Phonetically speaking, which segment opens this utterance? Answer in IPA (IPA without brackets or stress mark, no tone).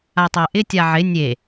a